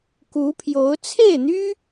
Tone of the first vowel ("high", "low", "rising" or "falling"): rising